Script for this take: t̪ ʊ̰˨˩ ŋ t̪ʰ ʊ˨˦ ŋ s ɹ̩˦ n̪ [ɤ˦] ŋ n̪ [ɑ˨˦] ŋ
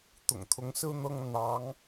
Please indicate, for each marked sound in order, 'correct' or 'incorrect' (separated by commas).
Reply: correct, correct